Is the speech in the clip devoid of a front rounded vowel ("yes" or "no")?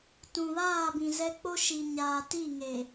yes